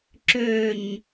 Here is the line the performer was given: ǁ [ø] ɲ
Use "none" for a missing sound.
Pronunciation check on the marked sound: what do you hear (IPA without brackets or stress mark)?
ø